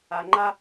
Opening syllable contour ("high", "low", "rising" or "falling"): low